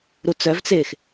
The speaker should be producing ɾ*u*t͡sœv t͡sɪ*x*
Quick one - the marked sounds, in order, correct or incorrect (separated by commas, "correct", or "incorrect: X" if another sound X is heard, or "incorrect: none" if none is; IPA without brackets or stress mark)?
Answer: correct, correct